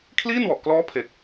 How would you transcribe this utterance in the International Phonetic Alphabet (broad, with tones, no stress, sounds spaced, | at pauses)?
kʰ l iː˥˩ n w ɔ˨˩ ʔ k l ɔː˦˥ pʰ e˨˩ k̚